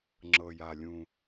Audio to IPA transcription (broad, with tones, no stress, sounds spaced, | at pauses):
ŋ͡ǁ ɤ˨˩ j a˨˩ lʲ ũ˨˩